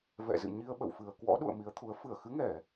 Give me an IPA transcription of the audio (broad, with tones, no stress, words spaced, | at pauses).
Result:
vɛ̰˧˨zɨ̰˧˨ɲi˧ə̯ ɓə̰˧˨wfɨ˨˩ə̯ kwɔ̰˧˥ɗṵ˧˨ə̯ mi˨˦ə̯t̪ʰu˨˦ə̯ fɨ˧˩ə̯xɨ˨˦ŋɛ˧˩˨